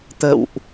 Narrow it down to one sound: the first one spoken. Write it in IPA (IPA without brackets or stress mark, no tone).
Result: t̪